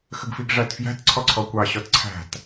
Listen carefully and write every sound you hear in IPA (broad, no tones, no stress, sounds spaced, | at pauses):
x ə ɡ f i ɡ ʐ æ t f j æ̤ t ǀʰ ɔ ǀʰ ɔ kʷ ɑ ɕ ɔ t ǀʰ æ̤ t